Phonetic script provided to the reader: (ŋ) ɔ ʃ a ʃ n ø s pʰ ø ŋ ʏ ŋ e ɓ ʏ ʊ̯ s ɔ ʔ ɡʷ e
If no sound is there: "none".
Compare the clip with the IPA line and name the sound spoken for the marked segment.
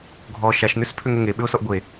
ɡʱ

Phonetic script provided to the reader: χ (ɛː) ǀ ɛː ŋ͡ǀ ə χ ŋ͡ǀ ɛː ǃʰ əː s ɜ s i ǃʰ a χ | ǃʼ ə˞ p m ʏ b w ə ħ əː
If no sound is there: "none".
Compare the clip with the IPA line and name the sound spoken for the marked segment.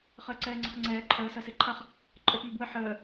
əː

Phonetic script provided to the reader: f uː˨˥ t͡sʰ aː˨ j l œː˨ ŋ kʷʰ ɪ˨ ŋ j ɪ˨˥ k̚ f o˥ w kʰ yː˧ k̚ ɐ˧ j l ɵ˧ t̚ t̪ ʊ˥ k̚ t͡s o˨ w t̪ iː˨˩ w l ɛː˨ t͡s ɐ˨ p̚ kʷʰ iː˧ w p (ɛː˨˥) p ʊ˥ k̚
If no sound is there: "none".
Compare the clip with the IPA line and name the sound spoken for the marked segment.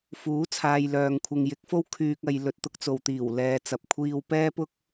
ɛː˥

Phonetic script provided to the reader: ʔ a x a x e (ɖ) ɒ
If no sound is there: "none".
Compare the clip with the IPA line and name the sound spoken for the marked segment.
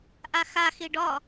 ɖ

